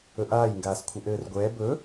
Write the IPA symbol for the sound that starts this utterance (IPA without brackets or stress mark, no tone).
ɵ